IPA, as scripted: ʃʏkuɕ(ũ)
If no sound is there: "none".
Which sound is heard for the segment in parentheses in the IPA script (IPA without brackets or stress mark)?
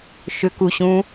ũ